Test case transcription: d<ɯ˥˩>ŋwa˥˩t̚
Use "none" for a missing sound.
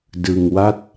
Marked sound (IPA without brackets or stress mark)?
ɯ˧